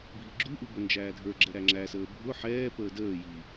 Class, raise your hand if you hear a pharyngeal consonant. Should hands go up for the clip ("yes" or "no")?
yes